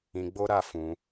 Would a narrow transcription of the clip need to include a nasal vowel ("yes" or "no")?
yes